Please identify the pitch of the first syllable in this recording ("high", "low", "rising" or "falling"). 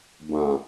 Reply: low